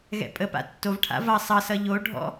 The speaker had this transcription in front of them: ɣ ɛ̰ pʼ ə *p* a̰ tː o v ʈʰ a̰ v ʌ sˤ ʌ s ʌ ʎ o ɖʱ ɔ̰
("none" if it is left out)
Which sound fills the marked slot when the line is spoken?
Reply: p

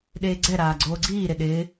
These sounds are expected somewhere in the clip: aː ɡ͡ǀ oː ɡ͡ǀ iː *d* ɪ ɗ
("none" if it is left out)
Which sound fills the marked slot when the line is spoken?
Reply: ɾ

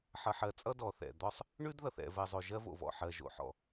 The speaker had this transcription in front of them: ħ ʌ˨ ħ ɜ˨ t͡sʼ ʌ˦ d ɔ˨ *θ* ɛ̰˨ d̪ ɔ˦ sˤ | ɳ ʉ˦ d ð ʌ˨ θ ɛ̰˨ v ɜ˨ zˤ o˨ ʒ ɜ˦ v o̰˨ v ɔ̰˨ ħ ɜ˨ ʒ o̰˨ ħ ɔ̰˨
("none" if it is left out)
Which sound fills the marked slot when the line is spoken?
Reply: θ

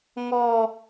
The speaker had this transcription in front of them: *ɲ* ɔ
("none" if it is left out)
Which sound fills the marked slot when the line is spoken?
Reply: ŋ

